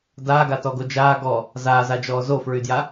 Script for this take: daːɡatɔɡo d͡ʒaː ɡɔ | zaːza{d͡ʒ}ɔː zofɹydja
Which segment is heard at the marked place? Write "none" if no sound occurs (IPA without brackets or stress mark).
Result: d͡ʒ